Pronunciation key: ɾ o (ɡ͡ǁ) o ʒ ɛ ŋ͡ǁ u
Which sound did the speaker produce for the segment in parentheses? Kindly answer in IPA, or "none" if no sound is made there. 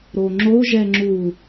ŋ͡ǁ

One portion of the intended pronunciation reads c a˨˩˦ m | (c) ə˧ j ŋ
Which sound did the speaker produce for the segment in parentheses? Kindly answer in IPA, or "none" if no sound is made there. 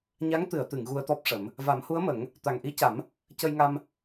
c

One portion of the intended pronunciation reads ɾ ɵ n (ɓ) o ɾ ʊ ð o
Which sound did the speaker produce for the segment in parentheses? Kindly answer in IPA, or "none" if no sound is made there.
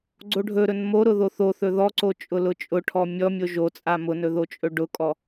m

